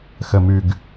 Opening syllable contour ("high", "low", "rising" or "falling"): low